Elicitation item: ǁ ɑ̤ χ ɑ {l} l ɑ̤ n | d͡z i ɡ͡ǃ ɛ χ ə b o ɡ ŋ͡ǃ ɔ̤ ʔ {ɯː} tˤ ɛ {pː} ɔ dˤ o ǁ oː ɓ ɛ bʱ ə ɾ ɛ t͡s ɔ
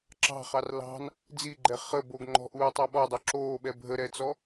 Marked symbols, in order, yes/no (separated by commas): no, no, no